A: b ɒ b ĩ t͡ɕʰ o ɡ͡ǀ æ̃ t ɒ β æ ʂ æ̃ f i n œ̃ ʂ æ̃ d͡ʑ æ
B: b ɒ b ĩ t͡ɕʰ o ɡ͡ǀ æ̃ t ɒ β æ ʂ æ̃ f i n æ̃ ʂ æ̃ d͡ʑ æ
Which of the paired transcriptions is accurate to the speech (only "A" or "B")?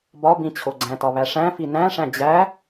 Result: B